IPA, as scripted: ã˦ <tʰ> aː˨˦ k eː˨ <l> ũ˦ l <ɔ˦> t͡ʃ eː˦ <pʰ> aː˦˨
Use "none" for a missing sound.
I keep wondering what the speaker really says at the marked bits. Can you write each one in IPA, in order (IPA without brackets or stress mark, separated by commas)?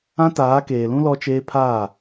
t, l, ɔ˦, pʰ